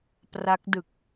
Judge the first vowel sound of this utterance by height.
low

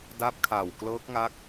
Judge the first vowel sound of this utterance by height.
low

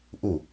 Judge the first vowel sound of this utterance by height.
high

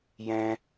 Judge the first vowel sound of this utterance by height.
mid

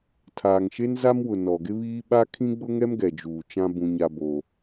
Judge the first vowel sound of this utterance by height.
low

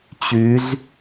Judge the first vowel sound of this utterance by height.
high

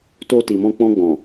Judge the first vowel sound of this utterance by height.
mid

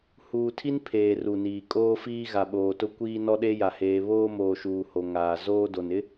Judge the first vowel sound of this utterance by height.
high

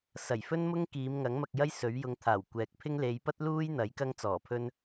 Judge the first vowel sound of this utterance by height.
low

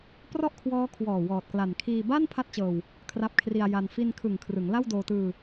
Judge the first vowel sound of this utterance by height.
mid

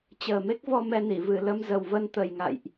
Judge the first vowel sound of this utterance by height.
mid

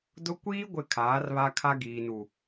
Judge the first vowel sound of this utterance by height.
high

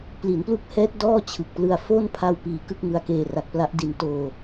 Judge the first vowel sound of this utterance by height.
high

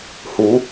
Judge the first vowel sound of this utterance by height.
high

